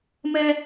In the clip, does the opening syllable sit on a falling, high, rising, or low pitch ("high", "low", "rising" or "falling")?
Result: high